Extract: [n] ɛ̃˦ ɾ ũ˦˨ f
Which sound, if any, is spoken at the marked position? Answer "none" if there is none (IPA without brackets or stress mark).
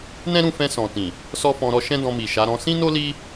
n